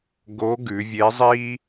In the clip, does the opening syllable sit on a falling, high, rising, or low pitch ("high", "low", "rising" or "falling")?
rising